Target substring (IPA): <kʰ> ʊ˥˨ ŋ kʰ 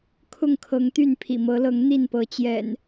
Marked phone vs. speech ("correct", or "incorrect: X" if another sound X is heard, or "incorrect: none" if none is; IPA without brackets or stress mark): correct